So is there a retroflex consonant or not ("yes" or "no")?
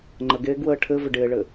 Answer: yes